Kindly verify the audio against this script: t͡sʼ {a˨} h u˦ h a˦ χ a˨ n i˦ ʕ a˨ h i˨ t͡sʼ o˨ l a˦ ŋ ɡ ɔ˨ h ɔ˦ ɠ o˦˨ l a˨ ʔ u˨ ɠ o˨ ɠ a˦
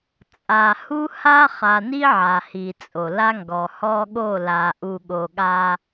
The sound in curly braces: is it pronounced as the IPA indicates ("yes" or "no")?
yes